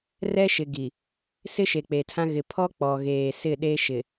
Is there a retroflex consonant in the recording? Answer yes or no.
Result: no